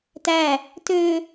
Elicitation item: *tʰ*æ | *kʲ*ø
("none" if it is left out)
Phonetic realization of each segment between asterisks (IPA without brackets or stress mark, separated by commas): t, t